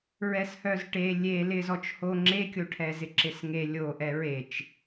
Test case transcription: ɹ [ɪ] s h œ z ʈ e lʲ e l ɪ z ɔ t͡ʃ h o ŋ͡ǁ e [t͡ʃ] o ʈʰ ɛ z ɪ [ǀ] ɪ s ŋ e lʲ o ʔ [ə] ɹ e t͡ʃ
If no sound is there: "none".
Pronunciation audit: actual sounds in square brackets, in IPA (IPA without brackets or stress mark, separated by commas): ɛ, kʲ, ǁ, ɛ